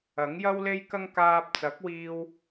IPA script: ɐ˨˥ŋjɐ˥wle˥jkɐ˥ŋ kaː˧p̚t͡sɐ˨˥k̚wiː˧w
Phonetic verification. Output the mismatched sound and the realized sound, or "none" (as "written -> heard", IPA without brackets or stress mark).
none